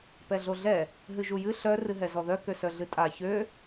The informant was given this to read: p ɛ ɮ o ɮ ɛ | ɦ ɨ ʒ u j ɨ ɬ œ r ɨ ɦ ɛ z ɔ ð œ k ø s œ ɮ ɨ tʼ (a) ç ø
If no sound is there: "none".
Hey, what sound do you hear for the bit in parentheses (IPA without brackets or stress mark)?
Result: a